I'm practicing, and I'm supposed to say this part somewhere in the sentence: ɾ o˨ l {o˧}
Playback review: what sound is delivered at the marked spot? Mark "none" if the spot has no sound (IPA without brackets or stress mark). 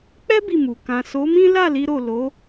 o˨˦